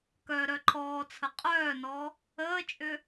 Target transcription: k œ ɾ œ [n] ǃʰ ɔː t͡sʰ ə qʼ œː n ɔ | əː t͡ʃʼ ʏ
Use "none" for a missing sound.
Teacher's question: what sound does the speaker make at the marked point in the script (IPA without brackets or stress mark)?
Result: none